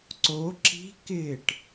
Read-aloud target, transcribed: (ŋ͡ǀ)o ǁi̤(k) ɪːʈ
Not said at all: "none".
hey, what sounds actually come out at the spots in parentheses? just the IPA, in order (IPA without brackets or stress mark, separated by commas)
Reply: ǀ, k